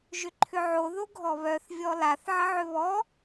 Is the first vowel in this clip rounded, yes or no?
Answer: yes